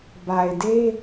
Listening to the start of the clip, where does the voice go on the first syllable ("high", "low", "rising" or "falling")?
low